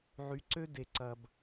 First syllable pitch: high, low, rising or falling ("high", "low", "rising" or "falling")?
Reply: rising